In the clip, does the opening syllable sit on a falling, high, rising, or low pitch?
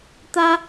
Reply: high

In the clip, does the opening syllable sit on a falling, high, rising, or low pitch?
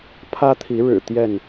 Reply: high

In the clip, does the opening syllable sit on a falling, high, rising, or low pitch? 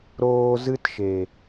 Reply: high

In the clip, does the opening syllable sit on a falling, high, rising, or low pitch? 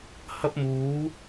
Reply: high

